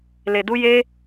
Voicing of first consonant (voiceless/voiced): voiced